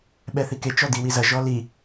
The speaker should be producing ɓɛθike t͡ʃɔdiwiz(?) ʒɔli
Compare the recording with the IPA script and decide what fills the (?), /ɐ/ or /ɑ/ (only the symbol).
ɐ